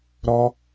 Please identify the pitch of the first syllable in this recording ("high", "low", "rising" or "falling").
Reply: high